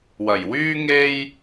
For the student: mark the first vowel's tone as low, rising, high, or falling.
low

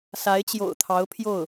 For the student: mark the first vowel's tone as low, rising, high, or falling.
rising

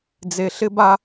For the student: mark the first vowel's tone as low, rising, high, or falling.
low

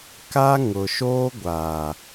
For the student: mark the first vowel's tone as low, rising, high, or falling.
high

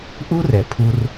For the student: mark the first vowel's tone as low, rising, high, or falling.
high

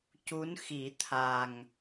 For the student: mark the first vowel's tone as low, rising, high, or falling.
rising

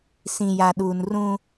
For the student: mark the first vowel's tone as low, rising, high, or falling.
low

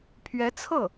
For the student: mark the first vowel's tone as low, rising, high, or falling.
rising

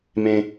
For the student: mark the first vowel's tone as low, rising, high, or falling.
low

